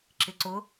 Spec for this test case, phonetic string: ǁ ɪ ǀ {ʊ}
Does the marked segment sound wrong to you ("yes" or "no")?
no